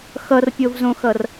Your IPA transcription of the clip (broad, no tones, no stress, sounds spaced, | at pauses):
x ʌ r pʲ o v z õ x ʌ r